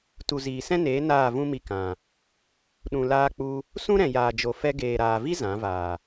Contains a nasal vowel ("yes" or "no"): yes